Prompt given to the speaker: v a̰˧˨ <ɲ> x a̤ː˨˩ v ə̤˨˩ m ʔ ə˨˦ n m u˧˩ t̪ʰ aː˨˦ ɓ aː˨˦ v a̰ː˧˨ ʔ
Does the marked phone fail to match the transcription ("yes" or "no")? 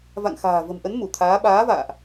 yes